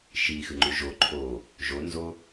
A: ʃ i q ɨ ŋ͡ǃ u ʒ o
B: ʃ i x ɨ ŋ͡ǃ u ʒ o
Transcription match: B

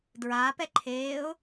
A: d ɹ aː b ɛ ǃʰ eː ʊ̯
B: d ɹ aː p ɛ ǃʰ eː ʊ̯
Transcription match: B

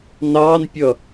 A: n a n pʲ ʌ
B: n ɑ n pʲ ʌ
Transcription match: B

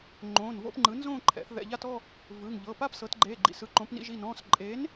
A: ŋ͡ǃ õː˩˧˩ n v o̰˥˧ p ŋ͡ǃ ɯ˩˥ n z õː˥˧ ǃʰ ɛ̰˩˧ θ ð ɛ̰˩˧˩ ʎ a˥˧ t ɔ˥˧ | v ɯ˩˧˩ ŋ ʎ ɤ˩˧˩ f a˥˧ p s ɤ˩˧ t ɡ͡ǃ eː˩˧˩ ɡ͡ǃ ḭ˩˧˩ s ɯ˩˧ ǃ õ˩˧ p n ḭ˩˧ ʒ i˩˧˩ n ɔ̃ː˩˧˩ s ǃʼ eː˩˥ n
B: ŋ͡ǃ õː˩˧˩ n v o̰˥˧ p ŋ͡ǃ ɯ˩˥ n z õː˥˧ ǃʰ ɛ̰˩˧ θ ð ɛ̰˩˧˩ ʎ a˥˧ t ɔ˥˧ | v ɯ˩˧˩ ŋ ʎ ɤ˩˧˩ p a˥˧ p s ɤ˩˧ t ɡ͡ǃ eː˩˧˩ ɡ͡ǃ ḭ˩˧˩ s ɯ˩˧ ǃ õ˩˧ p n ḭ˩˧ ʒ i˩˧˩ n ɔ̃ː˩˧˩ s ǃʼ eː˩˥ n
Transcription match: B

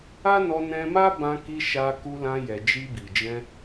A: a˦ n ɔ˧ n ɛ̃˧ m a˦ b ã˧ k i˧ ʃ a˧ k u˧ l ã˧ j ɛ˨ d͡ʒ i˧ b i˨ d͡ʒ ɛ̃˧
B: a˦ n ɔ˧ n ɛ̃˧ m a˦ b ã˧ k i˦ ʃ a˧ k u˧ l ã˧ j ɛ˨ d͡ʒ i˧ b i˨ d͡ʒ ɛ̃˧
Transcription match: A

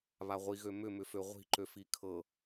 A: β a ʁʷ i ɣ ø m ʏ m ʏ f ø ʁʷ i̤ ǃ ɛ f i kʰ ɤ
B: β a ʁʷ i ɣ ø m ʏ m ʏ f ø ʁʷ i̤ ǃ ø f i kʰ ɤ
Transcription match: B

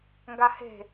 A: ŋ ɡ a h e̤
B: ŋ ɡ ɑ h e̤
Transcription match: A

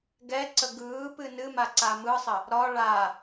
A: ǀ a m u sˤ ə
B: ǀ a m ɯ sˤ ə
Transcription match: B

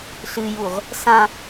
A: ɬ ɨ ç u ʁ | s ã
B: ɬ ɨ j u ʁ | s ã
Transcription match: B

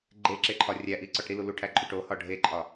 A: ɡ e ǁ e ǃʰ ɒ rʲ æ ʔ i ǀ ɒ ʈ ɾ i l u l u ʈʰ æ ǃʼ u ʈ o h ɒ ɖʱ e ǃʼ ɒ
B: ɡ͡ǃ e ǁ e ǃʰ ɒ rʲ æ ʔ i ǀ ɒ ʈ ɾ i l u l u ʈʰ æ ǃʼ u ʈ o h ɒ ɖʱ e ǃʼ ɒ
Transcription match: B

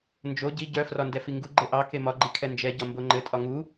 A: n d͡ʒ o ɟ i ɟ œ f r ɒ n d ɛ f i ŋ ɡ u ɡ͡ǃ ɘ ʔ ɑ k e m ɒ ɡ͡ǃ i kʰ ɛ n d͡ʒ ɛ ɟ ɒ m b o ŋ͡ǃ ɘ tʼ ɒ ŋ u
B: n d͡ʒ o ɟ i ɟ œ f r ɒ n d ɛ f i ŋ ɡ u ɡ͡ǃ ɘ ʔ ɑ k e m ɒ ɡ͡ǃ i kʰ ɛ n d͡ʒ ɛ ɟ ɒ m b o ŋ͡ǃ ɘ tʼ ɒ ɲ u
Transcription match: A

